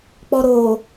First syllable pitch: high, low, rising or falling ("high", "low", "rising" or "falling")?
low